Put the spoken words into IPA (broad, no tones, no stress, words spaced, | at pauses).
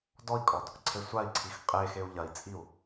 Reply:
dɔi̯kʼɔd | ǀʰesʷai̯ǀʰix qʼexeu̯ ʎɐi̯t͡sʼiu̯